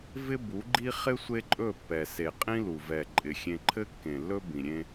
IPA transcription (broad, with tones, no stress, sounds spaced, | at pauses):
v ɪ˦ b u˨˦ ɡ͡ǃ i˦ χ ɪ˦ sʷ e˦ ǃʼ ɵ˦˨ pː ɛ˨ s e˨ qʼ ĩ˦ l u˨ v ɛ˨ ǃʼ ɪ˨ xʲ ẽ˦ ǃʰ ɘ˦ kː ẽ˨ lː ɵ˦ b ĩ˨ ɾʲ ẽ˦